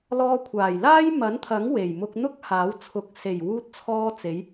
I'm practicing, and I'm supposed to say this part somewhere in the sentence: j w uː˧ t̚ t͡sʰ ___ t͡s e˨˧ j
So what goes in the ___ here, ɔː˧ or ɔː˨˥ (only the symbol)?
ɔː˧